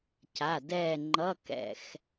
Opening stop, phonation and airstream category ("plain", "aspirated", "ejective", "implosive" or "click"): plain